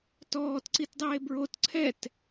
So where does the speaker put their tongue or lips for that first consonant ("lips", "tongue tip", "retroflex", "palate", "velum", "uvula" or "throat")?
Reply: tongue tip